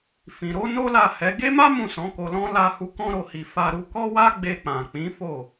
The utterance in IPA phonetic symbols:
f ĩ˨ ɾ o˨˦ n o˦ l a˦˨ h ɛ˨˦ ɡ e˦ m a˦ m ũ˦˨ s ɔ̃˨˦ k o˧ l ɔ̃˦ l a˧ h u˧ k ɔ̃˦ ɾ o˧ h i˧ f a˧ ɾ u˧ k ɔ˦ w a˦ ɡ͡b e˧ k͡p ã˨ k͡p ĩ˨˦ f o˦˨

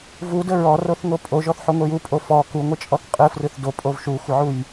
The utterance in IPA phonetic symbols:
v u d ə ɹ ɔ r o θ ŋ o pʼ o ʒ ɔ θ ħ o ŋʷ e j u pʼ o f ɔ k u ŋʷ ə t͡ʃʼ ɔ θ qʼ ɯ f r ɯ θ d o pʼ o v ʃ u xʷ ə ʕ u j

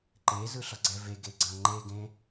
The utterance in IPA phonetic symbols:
ǃ e z ɯ ɬ ʌ ɡ͡ǀ ɛ v e ɡ e ɡ͡ǀ ã ŋ͡ǃ e ɡ ẽ

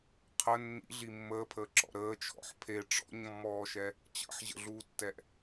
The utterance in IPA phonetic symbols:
qʰ ə nː ḭ ɮ i mː əː pʰ əː ǁ ɔ̰ ɾ əː t͡ʃʰ ɔ̰ ħ pʰ e ʈ͡ʂ ɔ̰ ɲ mː ɔː ʃ ɛ | t͡ɕ ə̰ ħ ʑ ə̰ ɮ uː tː ɛ ʔ

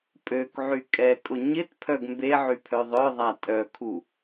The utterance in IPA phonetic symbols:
pʼ ø k ʕ y kʼ ɛ kʼ ʊ ɲ ɪ t pʰ œ ɡ m b e ʕ y pʰ œ ðˤ œ ðˤ a tʼ œ kʰ u

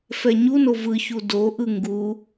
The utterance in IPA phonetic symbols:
f ɛ ɲ u n o v ɯ ç u d o ʔ ɯ ŋ ɡ u

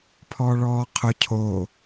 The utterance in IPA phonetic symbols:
pʰ ɔː ɭ ɔː qʰ ʊ cʰ o

